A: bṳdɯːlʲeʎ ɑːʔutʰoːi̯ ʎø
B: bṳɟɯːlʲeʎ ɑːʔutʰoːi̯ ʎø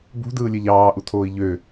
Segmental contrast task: A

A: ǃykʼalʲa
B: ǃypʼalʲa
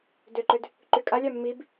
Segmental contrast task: A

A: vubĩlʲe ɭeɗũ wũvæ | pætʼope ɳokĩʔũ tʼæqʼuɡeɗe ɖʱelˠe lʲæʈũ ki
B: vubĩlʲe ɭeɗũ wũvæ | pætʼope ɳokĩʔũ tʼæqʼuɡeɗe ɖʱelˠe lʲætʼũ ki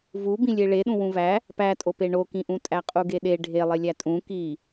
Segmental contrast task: B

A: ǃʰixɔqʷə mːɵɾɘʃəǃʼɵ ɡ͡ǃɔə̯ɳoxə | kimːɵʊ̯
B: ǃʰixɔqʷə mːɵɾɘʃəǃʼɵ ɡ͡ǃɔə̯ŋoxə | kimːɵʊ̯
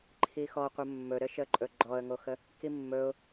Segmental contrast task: B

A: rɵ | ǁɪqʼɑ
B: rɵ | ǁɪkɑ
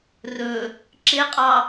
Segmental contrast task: A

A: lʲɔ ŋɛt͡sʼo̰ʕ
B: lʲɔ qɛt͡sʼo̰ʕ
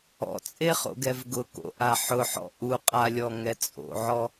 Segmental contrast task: A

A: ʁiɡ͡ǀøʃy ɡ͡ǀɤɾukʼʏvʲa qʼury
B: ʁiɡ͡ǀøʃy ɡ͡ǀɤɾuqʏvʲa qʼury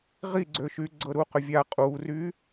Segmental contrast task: B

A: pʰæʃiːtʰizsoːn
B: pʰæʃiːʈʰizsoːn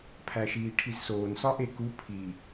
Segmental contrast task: B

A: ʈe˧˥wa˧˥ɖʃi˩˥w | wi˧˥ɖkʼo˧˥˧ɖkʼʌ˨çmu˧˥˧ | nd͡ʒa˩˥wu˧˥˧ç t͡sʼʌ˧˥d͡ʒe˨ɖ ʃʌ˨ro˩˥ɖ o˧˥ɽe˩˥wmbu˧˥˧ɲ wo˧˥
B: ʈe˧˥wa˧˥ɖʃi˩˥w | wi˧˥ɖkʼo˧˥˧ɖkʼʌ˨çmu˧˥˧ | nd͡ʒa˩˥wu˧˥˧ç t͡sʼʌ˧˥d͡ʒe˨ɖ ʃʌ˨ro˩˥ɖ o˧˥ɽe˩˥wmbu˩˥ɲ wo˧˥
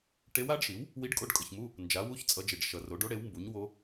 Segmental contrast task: B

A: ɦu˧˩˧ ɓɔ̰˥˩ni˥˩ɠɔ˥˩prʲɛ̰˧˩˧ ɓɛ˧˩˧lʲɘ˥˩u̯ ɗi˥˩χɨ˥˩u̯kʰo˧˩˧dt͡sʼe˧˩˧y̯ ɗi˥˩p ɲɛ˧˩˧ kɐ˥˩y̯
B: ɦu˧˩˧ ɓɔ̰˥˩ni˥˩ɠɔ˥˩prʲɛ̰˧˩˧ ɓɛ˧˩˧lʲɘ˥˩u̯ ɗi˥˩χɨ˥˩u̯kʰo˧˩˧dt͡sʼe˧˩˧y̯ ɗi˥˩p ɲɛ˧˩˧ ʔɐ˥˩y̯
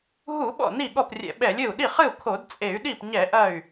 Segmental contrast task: B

